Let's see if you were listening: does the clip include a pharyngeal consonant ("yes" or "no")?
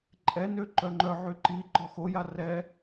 yes